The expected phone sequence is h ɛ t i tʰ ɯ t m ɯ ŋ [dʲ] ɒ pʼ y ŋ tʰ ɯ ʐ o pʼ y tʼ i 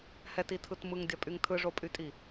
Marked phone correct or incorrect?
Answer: correct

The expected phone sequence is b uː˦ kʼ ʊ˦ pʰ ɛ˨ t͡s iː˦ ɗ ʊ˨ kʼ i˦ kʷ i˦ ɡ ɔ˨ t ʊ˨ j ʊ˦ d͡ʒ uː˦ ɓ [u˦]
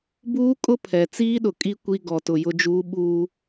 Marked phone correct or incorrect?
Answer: incorrect: uː˦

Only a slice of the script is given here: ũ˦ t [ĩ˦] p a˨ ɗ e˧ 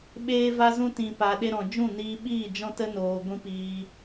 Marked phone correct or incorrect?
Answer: incorrect: ĩ˨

